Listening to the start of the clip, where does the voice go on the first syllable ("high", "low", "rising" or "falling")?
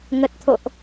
low